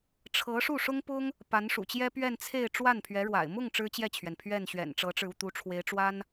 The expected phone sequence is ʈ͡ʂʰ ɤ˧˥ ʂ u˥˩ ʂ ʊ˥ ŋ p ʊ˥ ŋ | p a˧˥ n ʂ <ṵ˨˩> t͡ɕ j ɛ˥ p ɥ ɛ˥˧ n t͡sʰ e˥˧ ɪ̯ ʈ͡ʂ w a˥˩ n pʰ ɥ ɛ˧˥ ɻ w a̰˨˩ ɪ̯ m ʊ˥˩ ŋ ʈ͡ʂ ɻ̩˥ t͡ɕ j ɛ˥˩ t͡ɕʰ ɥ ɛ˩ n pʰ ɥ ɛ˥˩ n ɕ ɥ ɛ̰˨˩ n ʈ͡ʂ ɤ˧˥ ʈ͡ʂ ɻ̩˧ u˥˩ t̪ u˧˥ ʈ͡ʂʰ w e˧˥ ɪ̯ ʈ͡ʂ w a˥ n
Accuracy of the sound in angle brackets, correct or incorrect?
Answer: correct